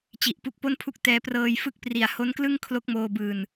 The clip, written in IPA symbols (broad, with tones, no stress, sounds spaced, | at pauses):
t͡ɕ i˨˩ ʔ p u˦˥ k̚ p o˥˩ n pʰ u˥˩ k̚ t ɛː˧ p r ɤː˧ j f ɯ˦˥ k̚ p r i˨˩ a̯ h o˦˥ n k l ɯ˥˩ ŋ kʰ l o˦˥ k̚ m oː˧ b ɯː˧ n